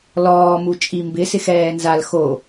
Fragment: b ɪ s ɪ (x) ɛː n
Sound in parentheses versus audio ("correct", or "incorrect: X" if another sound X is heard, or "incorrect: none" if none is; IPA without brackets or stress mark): correct